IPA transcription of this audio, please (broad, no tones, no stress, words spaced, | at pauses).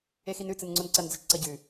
exinʉ t͡sɨnŋ͡ǀonǀɐn d͡zɐt͡ʃǀɐɟʉ